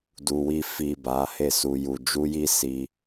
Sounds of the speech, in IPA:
d u˨ w i˧ f i˨ b a˨˦ h e˦˨ s u˧ j u˧ d͡ʒ u˦ j i˦ s i˧

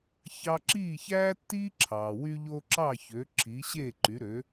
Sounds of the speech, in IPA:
ç ɑ˧ ǁ iː˥˩ ç æː˥ tː iː˥ ǁʰ ɑː˩ w y˧ ʎ o˧ ǁ ɑ˥˩ ç ø˩˥ ǁʰ iː˩˥ ɕ eː˥˩ ǃ y˩˥ ɾ ø˩˥

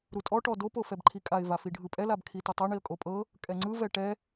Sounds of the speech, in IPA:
ɾ u tʼ ɔ ʈ ɔ d o p o f ɛ b ǃʰ i kʼ a ɪ̯ v a f i ɖʱ ɯ pʼ ɛ l a b kʰ i t ɯ tˤ ɛ ɳ i ə̯ kʼ o pʼ ɤ | kʼ ɛ ŋ͡ǀ ɯ v ɛ ʈ ɛ

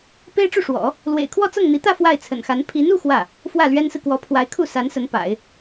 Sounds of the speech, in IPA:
p e˥ ɪ̯ ʈ͡ʂ u˥˩ ʂ w ɔ̰˨˩˦ | l w ḛ˨˩ ɪ̯ kʰ w ɔ˥˧ t͡s ɤ˥˩ ŋ n̪ i˧˥ t̪ ä˥˧ f w a˥˩ ɪ̯ t͡sʰ ə̰˨˩ n x a˧˥ n pʰ i˧˥ n u˥˧ x w ä˥˩ | f w ä˥˩ l ɥ ɛ˥ n s ɹ̩˨ k w ɔ˧˥ pʰ w a˧˥ ɪ̯ kʰ u˥˩ s a˧˥ n s ə˧˥ n p a̰˨˩˦ ɪ̯

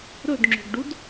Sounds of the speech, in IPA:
ɾ ɵ d ŋ͡ǁ o̤ ɡ ɖ u d

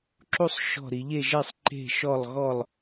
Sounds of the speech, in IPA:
ǁ u˥˧ sˤ ʃ ɔ̤˥˧ ɾ i˨˦ ʎ e˥˧ ʒ ɛ˥˧ sˤ ǃ e̤˥˧ ʃ ɔ˥˧ lˠ ɣ ɔ˥˧ lˠ

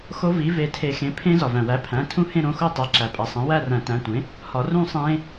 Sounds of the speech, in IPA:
x o˦˥ v i˩˥ v e˨˩˦ tʰ e˨˩˦ x ẽ˩˥ pʰ ẽ˦˥ z ɒ˩ v æ̃˩ w æ˩˥ pʰ æ̃˩˧˩ tʰ ũ˦˥ h ẽ˥˧ ɾ õ˩˧˩ x o˥˧ tˤ æ˩˧˩ ǁ æ˩ pʼ æ˩ sˤ æ̃˩˥ w æ˥˧ r æ̃˨˩˦ t æ̃˩˧˩ tʷ ẽ˩˥ | h ɒ˨˩˦ r ũ˥˧ sˤ ẽ˦˥

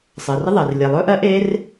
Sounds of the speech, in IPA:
sˤ ɜ˩ r ə˥ ðˤ ɜ˩ r lʲ ɛ˩ lˠ ɵː˥ ʔ ɜ˥ ʔ eː˥ r

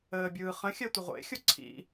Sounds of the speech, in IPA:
əː bʲ ɯː χ ə̃ xʲ ɜ tʷ ə ʁʷ ḛ xʲ o ǀʰ ḭ

